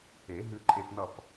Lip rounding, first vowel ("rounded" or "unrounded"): unrounded